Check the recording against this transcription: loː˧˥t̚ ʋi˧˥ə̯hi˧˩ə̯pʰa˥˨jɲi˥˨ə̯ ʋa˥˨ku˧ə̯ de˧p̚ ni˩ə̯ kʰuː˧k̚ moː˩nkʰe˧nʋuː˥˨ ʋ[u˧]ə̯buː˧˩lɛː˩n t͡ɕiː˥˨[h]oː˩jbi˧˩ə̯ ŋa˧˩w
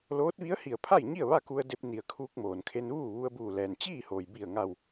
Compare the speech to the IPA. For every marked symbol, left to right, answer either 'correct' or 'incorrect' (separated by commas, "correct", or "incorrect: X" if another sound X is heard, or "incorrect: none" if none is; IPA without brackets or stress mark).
correct, correct